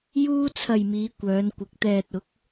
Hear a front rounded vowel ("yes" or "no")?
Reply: yes